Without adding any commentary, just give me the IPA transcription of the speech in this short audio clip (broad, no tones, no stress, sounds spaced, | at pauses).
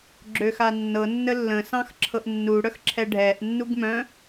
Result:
ɡ͡ǁ ø x a nː ɤ nː ə lː ə̃ s ɑ̃ x ǁʰ ɤ ʔ nː u ɽ œ x ǁʰ ɛ ɖʱ ɛ ʔ nː u ɡ m œ̃